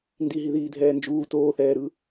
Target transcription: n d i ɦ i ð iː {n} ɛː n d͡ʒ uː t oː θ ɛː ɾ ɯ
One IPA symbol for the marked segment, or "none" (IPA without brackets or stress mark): dʱ